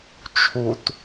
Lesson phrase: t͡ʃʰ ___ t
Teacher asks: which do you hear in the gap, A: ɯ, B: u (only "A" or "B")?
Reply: B